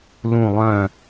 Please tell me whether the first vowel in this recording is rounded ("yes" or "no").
yes